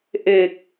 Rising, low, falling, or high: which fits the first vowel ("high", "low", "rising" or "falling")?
low